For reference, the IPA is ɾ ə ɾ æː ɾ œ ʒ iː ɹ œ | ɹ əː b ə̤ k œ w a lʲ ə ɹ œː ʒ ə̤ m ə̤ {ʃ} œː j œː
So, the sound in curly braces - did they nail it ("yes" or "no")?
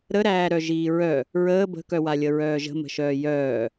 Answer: yes